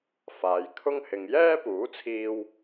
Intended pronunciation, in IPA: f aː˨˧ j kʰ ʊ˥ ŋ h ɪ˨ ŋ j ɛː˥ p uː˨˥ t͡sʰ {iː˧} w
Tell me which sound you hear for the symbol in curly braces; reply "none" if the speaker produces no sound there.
iː˧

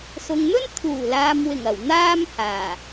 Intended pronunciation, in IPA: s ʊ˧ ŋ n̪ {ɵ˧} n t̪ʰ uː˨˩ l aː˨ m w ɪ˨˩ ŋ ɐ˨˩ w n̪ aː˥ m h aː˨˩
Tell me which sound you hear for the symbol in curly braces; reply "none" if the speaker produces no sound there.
ɵ˥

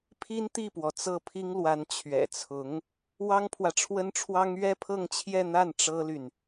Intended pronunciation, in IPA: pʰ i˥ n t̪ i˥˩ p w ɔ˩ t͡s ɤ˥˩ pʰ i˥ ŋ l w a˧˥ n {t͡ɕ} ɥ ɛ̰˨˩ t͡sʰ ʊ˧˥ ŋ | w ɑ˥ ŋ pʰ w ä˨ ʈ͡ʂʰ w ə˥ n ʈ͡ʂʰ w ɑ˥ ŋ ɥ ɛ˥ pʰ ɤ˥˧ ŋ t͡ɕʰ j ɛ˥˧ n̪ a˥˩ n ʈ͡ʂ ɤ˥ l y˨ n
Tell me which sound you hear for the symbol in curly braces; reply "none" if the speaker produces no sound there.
t͡ɕʰ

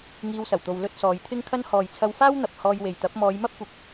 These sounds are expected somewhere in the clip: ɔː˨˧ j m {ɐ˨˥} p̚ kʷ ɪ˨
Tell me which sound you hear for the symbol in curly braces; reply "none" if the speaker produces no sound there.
ɐ˥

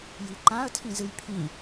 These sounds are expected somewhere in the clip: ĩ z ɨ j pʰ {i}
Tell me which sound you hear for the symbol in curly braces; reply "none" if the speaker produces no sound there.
ĩ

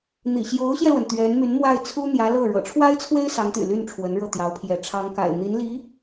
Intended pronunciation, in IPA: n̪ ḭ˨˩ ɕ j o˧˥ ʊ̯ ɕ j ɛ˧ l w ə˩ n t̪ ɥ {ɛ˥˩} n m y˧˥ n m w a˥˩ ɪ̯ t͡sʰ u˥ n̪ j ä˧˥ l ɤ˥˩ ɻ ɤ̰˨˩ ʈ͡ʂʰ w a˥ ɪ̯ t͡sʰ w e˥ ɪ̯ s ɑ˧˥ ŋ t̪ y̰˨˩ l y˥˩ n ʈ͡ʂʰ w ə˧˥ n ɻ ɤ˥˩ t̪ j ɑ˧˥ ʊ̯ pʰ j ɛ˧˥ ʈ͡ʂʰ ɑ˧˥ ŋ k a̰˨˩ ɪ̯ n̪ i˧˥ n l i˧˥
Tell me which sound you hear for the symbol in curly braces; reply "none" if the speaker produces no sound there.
ɛ˧˥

